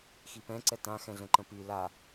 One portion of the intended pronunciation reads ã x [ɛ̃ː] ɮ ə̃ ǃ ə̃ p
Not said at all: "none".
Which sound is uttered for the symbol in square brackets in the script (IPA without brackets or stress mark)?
ɛ̃